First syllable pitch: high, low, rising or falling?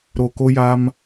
low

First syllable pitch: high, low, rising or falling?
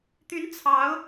rising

